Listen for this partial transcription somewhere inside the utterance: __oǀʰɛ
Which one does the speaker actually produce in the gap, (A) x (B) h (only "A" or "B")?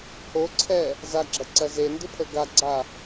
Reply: B